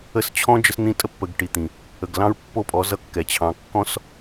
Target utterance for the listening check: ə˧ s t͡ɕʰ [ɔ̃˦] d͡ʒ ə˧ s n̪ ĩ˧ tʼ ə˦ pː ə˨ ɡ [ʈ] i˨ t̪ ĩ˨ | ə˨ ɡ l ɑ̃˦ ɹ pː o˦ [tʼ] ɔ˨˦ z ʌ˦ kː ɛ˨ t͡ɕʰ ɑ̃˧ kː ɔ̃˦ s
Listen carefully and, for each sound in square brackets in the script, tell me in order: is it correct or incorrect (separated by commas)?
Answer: correct, correct, incorrect